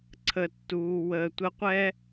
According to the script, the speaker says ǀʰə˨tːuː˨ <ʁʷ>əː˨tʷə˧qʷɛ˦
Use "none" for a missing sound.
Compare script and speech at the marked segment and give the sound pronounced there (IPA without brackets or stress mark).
w